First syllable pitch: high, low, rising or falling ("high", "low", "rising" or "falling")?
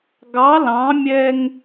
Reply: rising